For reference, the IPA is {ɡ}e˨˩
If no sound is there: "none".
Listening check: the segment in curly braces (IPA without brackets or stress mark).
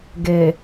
ɡ